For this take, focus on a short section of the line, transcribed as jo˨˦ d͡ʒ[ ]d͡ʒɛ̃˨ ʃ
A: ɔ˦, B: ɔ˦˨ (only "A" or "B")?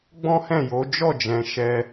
B